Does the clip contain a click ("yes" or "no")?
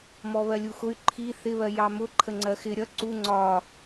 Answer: yes